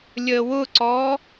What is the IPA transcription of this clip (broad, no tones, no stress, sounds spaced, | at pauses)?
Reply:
lʲ əː w ʊ ǀ ɔː